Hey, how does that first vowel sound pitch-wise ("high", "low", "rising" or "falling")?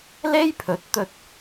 high